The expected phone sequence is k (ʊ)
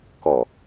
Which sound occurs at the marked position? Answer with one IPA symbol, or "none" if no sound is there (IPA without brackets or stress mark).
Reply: ɔ